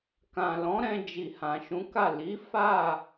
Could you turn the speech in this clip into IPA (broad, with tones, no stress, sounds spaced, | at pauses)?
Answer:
k ã˨ l ɔ̃˨˦ ɾ ɛ̃˧ d͡ʒ i˨ h ã˨ ʃ ũ˨˦ k a˦˨ l i˨˦ f a˦˨